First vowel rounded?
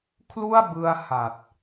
yes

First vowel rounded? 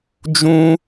yes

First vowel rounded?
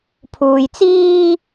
yes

